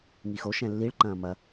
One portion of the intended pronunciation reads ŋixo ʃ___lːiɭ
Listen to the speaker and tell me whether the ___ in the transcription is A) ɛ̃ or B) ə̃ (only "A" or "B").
A